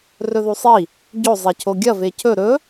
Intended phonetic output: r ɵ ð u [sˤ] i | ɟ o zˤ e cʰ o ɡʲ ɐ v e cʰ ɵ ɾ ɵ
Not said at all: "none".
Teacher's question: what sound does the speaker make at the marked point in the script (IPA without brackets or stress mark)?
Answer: sˤ